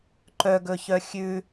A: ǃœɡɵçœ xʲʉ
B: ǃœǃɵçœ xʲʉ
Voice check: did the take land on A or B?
A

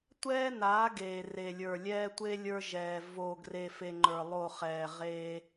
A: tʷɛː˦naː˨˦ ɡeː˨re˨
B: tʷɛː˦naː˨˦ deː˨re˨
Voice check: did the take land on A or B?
A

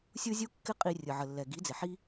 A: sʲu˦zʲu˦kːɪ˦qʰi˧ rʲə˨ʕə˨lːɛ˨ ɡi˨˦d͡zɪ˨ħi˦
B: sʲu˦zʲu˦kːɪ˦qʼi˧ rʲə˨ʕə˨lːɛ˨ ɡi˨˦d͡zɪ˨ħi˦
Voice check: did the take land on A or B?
B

